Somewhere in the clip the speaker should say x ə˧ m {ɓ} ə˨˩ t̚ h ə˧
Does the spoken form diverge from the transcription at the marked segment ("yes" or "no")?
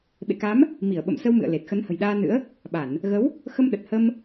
yes